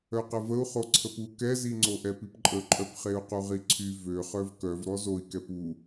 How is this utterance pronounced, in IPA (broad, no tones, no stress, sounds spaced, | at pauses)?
œ q ə v ə u̯ χ o ǀʰ ə p u k ɛ z i ŋ͡ǀ o ʔ ɛ p i p ǃʼ ə ǃʼ œ p χ e u̯ q u ʁ i ǀʰ y v ø χ œ v k œ v ɾ ɔ z o i̯ k ɛ p u